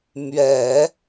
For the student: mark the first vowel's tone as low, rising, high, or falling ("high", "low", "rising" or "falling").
low